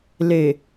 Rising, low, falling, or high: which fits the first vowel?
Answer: low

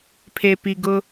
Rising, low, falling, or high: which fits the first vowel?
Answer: low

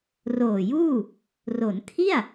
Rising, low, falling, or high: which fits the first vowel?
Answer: low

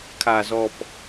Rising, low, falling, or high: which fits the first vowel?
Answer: low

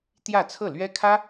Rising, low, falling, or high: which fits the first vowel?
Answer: falling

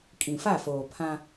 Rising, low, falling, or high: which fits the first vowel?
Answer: low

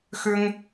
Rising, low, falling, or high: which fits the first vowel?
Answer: high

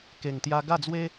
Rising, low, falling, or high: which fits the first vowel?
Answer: low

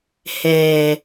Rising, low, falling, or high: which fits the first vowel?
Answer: low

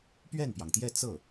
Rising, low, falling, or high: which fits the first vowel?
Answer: falling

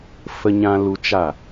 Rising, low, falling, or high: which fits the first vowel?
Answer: high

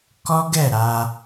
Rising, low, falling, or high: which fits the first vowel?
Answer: high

